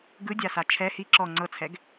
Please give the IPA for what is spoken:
ɡ ɯ dʲ a s a t͡ʃʰ ɛ h i ǁ ɔ ŋ͡ǀ ɤ t͡sʰ ɛ ɡ

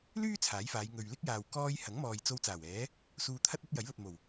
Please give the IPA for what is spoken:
l yː˥ t͡sʰ aː˨˥ j f aː˨˧ j ŋ ɵ˨ ɥ l ɪ˥ k̚ j aː˨ w k ɔː˧ j h ɐ˨˥ ŋ m ɔː˨ j t͡s o˧ w t͡s aː˨˩ w ɛː˨˥ | s uː˧ t̪ʰ ɐ˥ t̚ ɐ˥ t̚ j ɐ˨˥ j l ɐ˨ t̚ m o˨˩ w

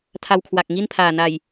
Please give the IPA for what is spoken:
tʰ a˧ w kʰ w a˨˩ k̚ ŋ i˥˩ n pʰ aː˨˩ n a˨˩ j

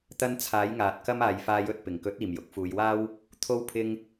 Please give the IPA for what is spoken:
t̪ ɐ˧ n t͡sʰ aː˨˥ j ŋ aː˨ t̚ k ɐ˥ m aː˨ j f aː˧ j ɵ˧ t̚ p ɪ˨˩ ŋ k ɵ˨˥ t̚ iː˨˩ m j ʊ˨˥ k̚ f uː˨˧ j w aː˥ w | t̪ʰ o˥ w pʰ ɪ˥ ŋ

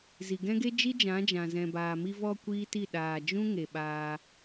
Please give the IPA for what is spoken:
z i˨ ɡ ɛ̃˦ ɡ e˦ d͡ʒ i˦ d͡ʒ ã˨˦ d͡ʒ ã˨ z ɛ̃˨ b aː˨ m i˧ v ɔ˧ kʷ iː˦ t i˦˨ ɗ aː˨ d͡ʒ ũ˦ ŋ e˨ ɓ aː˧

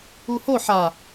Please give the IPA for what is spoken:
u h o ħ a

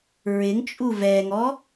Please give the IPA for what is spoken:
ɹ ɪ ŋ t͡ʃʼ u v ɛ ŋ ɔ

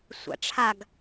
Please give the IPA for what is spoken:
sʷ a̰ ʈ͡ʂʰ a ɡ

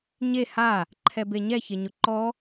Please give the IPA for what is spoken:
ɲ e h a | ǃʰ ɛ b e ɲ ɛ ç e ɲ ʊ ǃ ɔ

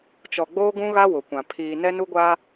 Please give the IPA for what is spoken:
t͡ʃ ɔ˨ ɡ͡b oː˦ ɡ ũ˦ ɣ a˦ w ʊ˨ kʷ ã˨ pʰ iː˨ n ɛ˦ n u˦ ɡʷ aː˦

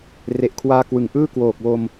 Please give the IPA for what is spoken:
r e˨˩ ʔ kʰ w aː˧ k w ɯ˨˩ ŋ ʔ ɯː˥˩ k w oː˨˩ k̚ w o˧ m

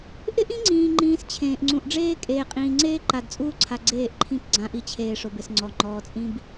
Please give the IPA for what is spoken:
ʔ ɪ˦ ʔ ĩ˦ ŋ͡ǀ ĩː˨ ŋ͡ǃ ĩː˨ s t͡ɕʰ ẽː˨ ʔ ŋ͡ǀ ũ˨ ʔ ɖ͡ʐ eː˦ kʼ eː˨ qʼ ĩː˨ ŋ͡ǀ eː˦ ǃ a˨ d t͡sʼ uː˦ ǀʰ a˨ ɡ͡ǀ eː˦˨ ʔ ǃʰ ĩ˦ p ɡ͡ǀ ã˨˦ ʔ i˨ t͡ɕʰ eː˨ ʂ ʊ˨ b ɪ˨ s ŋ͡ǀ ɔ˨ ŋ͡ǃ ɔː˨ t͡sʼ ĩ˦ b

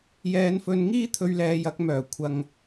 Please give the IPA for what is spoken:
j ɛː˨˧ n f ɵ˨˧ n ŋ iː˥ t̪ʰ ɵ˧ ɥ l ɛː˨˧ j ɐ˨˥ k̚ m œː˨˩ kʷʰ ɐ˨ ŋ

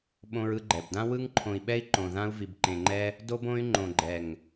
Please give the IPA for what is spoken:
ɓ õ˧ ɹ ɯ˧ ɡ͡ǃ ɛ˨ b d ã˦ w ɯ˧ ŋ ǃʰ õ˨ i̯ ɓ ɛ˧ i̯ ǃ õ˨ ð ã˧ u̯ v i˨ b ǃ ẽ˨ ŋ͡ǃ ɛ˧ | d o˧ b õ˧ y̯ ŋ͡ǃ õ˨ ɡ͡ǃ ɛ˨ ŋ

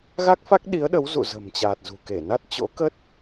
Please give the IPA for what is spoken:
ɣ a˦˥ k̚ f a˦˥ k̚ ɗ i˨˦ ə̯ ɗ ə˨˦ w z ṵ˧˨ z ə̤˨˩ m t͡ɕ aː˨˩ t̚ z ṳ˨˩ k e˧˩ n a˦˥ t̚ t͡ɕ o̰˧˥ k ə˦˥ t̚

